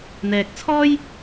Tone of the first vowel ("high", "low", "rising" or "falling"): low